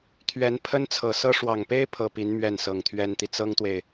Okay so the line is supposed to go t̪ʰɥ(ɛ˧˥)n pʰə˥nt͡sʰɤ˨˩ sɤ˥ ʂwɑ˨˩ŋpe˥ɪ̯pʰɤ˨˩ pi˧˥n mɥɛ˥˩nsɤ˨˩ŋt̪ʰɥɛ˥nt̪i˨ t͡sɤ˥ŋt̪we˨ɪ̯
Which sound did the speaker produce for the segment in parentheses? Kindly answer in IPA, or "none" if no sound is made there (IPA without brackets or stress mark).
ɛ˧˥